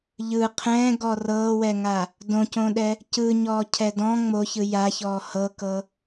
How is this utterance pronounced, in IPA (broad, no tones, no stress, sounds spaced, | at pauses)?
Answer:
ʎ ɯ qʰ ɛ̃ː ɡ ɔ r ɤː w ɛ ŋ a | d õ c õ ɗ ɛ | c ɯ ɲ ɔː cʰ ɛ d ɔ̃ ŋ͡m o ç ɯ j a ç ɔː h ɤ k ɤ